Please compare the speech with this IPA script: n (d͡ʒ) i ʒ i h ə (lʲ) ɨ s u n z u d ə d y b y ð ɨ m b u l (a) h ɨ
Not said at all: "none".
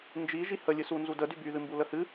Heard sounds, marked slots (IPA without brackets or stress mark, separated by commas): d͡ʒ, lʲ, ə